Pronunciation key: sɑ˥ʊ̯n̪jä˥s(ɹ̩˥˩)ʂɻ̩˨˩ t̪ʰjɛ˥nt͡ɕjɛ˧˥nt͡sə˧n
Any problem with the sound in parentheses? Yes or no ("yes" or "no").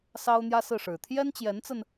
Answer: no